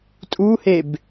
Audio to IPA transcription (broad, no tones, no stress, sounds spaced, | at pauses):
tʼ u h e b